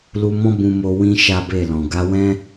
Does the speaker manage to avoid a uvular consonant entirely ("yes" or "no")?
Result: yes